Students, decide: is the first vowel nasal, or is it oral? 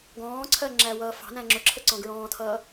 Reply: nasal